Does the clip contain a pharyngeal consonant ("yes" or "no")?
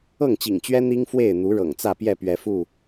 no